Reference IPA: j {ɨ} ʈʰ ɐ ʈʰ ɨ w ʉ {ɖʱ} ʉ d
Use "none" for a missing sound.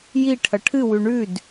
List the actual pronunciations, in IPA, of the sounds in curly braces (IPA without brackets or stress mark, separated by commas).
i, ɳ